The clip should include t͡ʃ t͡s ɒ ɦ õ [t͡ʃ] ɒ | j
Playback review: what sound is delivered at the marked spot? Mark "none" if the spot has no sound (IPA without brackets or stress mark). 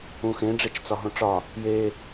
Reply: ʈ͡ʂ